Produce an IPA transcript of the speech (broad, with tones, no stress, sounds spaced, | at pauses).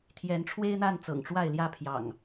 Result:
t̪ʰ j ɛ˨˦ n ʈ͡ʂʰ w e˦ ɪ̯ n̪ a˥˨ n t͡s ɤ̰˨˩ ŋ ʈ͡ʂ w a˥˨ ɪ̯ l j ä˥˨ pʰ j ɑ̰˨˩ ŋ